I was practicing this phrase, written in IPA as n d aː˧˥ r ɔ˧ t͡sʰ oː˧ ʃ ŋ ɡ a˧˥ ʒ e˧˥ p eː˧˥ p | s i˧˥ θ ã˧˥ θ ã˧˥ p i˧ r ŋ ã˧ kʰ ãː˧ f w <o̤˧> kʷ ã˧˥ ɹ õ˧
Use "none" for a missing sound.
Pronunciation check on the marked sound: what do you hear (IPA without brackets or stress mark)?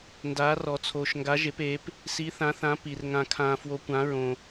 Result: o˧